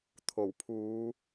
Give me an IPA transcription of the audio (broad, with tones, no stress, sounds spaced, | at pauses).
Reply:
t̪ʰ o˨˩ w pʰ uː˨˧